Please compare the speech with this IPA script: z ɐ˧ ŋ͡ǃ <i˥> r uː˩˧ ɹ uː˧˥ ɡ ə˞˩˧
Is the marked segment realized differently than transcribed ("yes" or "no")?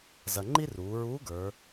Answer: no